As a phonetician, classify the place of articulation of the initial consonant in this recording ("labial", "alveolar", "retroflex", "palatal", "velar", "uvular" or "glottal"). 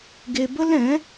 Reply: velar